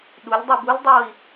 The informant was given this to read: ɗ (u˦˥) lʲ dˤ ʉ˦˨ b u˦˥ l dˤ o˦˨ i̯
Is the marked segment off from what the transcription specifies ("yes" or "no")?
yes